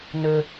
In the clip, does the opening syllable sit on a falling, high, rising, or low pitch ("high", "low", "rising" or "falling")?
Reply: low